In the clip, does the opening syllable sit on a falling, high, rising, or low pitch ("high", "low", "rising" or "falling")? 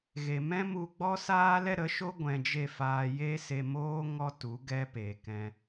low